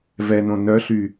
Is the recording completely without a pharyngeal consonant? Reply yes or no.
yes